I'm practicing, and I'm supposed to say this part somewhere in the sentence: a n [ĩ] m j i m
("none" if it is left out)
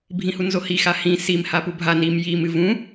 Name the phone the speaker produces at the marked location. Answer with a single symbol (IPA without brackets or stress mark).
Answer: i